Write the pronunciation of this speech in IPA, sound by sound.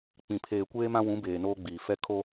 k͡p ĩ˨ pʰ eː˨ kʷ eː˦ m ã˦ w ũ˨˦ b eː˨ n oː˦ ɡ͡b iː˨ f ɛ˦ kʰ o˦

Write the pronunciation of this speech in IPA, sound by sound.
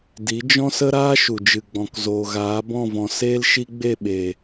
d i˨˦ d͡ʒ ɔ̃˦ s ə˦ ɾ aː˦ ʃ u˨ d͡ʒ ɨ˨ ɡ͡b ɔ̃˨ k z oː˨ ɣ aː˨˦ b ɔ̃˦˨ v ɔ̃˨ s eː˦ l ʃ i˦ ɡ͡b e˦˨ ɓ e˨

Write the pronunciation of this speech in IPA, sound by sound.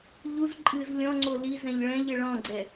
ʎ u z ǃʼ ɨ z lʲ ɔ̃ ŋ͡ǀ o l i z ɛ̃ ʎ ɭ ɛ̃ ʎ ɘ ɭ ɔ̃ ɡ͡ǀ ɛ

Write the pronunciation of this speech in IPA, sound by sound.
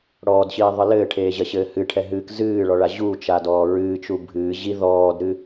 ɽ ɔː d ɕ iː ðˤ ɨ l ɘː ʈʰ eː ʑ ɐ ɕ ɘː h ɨ ʈʰ ɛ ɦ ɨː k z ɨː ɭ ɔ ɭ a ʑ u t͡ʃ a d ɔː ɹ ɨː t͡ʃ u bʱ ɨː ʑ i ð ɔː d ɾ ɨ

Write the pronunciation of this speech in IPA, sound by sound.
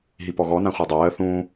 ɦ i p ɔ ɣ ɔ n ã χʷ a dˤ ɜː θ ũː

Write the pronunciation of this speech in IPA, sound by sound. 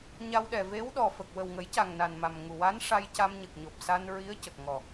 ɲ a˧ w ɗ ɛ˨˩ v e˧˥ w ɗ ɔ˨˩ f ə˨˩ k̚ w ə˨˩ w ŋ ə˨˩˦ j c a˨˩ ŋ n a˨˩ n m a˨˩ m ŋ u˨˩ w a˧˥ n ʂ a˧ j c a˧ m ɲ ə˨˩ k̚ ɲ o˨˩ p̚ s a˧ n ɹ i˧˥ ə̯ c ə˨˩ k̚ ŋ ɔ˨˩

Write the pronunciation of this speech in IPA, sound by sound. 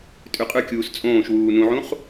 tʼ ʉ qʼ ʉ kʲ uː s t͡sʼ õː ʃ w uː n ũ ʕ ũ χ

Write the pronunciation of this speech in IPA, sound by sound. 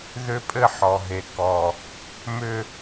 ð ʏ˦ pʼ ɘ˦ ħ ɔ˨ ɦ e˨ k ɔ˨ | m ʏ˦

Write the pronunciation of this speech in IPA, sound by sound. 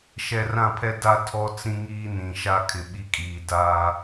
ʃ ɛ˨ r ã˦˨ pʰ ɛ˦ d a˦ tʰ ɔ˦ t͡s ĩ˦ ŋ iː˦ n ĩ˨ ʃ a˦ kʰ ɪ˨ ɓ i˦ kʼ iː˨ d aː˦

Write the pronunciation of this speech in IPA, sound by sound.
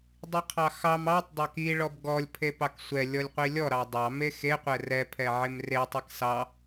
dˤ i qʰ ɑ x ɑ m ɑ tˤ dˤ ɑ k i ɭ ɔ b ɡ ɔ lʲ pʰ e p ɑ k sʷ ɛ lʲ ɔ lʲ qʷ i lʲ ɔ ɾ ɑ dˤ ɑ m e x e qʷ ɛ r ɛ pʰ ɛ ʕ e m r e tˤ e k s ɑ

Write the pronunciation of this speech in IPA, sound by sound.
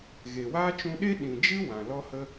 ɣ e˨ w a˦ t͡ʃ ũ˧ ɗ e˦ ɗ ĩ˨ d͡ʒ ɨ˦ w ã˨ l ɔ˦ h ə˦

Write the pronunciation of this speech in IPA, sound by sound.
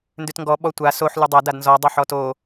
n d ʉ t ŋ ɡ ɔ ɓ ɔ tʷ a s o ħ l ʉ dˤ a d a d n z ɔ dˤ o ħ ɔ t o

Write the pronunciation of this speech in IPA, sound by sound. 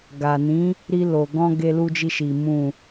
ɡ a˨ n ĩ˨˦ | ɾ i˧ l o˨ ɡ ɔ̃˧ ɡ e˧ l u˧ d͡ʒ i˧ ʃ i˨ m ũ˨

